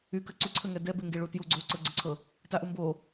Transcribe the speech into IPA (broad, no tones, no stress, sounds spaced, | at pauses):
y k ə ǀ u ǀʰ ə ŋ ɛ d ɛ b e ŋ ɡ e ɭ u t j u ɡ͡ǀ o ǀ ɤ ɡ͡ǀ ə ǀʰ ɤ | t a ʔ u m b o